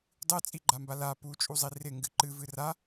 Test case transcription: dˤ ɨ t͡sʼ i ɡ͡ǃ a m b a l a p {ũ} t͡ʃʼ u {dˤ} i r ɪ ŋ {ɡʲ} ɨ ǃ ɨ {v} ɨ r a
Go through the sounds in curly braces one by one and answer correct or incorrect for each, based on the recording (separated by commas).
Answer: incorrect, incorrect, incorrect, correct